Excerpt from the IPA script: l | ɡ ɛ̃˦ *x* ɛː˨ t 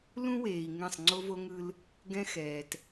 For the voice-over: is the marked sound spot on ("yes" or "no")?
yes